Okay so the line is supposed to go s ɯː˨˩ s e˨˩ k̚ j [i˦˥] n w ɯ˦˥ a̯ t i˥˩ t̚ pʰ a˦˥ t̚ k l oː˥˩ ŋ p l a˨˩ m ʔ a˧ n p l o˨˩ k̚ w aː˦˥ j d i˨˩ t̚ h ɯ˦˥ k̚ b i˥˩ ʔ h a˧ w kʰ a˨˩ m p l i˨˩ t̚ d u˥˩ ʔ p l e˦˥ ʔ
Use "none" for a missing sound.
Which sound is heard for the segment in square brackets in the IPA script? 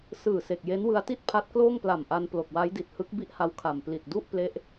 e˦˥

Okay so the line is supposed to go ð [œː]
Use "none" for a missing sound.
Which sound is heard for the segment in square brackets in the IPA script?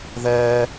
ɛː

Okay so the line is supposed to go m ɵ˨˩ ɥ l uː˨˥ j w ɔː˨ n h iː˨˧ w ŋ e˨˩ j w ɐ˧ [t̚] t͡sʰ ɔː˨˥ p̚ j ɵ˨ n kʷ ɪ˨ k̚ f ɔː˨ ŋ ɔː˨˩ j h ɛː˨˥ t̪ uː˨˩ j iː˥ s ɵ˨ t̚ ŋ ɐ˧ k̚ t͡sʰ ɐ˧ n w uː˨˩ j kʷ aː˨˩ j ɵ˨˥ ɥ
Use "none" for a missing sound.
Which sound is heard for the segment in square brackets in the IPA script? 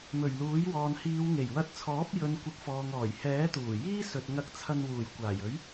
t̚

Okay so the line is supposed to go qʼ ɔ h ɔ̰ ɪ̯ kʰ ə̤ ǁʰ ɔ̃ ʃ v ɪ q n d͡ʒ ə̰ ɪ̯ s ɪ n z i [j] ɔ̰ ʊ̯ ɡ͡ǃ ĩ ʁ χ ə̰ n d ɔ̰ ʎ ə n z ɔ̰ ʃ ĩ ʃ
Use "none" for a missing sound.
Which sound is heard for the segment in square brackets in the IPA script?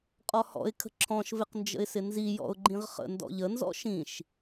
j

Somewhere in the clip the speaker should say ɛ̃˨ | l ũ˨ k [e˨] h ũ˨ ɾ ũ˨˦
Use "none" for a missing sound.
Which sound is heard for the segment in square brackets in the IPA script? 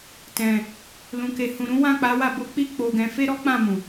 e˨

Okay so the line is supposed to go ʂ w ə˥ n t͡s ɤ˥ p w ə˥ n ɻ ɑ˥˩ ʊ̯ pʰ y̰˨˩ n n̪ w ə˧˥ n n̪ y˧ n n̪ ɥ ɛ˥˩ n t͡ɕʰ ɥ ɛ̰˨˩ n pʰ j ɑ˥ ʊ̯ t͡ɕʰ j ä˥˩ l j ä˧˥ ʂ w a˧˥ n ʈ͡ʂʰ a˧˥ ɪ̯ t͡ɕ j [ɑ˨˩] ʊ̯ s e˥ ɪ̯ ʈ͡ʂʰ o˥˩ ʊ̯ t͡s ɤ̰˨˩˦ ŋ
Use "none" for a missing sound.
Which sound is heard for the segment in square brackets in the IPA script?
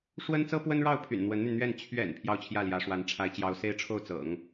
ɑ˧˥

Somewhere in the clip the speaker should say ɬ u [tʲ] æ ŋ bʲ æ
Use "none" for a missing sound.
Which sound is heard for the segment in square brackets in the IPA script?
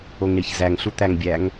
t̪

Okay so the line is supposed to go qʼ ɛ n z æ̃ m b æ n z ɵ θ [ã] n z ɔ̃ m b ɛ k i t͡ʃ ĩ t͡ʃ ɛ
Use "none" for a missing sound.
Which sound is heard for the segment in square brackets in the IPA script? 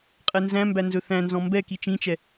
æ̃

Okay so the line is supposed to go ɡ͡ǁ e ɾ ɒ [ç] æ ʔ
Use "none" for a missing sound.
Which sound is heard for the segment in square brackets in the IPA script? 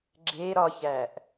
ç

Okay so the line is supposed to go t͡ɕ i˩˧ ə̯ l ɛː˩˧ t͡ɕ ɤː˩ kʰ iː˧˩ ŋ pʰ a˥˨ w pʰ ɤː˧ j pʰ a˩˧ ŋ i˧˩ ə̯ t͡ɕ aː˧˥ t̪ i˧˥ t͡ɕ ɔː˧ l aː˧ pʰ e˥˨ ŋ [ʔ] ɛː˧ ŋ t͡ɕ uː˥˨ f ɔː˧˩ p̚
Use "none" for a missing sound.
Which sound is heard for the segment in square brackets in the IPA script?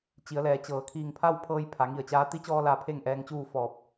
ʔ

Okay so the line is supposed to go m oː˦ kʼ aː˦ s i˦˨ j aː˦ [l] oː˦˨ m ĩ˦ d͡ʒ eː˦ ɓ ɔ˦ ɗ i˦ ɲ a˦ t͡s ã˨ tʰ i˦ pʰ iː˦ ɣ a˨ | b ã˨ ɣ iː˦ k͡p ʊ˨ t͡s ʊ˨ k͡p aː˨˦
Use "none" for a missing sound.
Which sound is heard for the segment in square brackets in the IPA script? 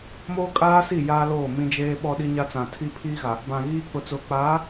l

